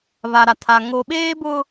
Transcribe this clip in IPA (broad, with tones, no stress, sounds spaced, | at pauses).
β a˨ ɾ a˨ tʰ a˨ ŋ o˨ ɓ eː˦ b ʊ˦